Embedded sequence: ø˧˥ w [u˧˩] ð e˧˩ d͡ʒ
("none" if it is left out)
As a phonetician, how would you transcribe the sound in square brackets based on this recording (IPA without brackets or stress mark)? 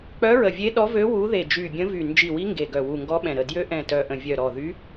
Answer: u˧˥